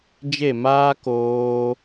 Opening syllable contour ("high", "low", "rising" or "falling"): falling